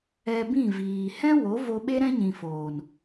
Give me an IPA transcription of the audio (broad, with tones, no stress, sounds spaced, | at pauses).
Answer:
ɛ˧ b ĩ˦˨ v iː˨ h ɛ̃˦ w o˨˦ v o˧ ɓ e˦ ɾ ɛ̃˦ ɲ ĩ˨ f oː˨ n